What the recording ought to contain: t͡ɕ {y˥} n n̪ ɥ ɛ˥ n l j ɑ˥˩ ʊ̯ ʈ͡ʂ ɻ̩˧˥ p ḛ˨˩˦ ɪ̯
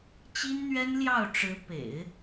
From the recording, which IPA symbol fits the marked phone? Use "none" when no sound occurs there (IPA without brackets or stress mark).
i˥